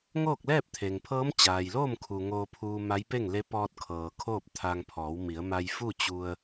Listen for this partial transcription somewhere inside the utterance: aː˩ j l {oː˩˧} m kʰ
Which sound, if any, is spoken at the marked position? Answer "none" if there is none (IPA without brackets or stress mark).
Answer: oː˥˨